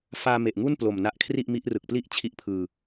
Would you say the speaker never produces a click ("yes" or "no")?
yes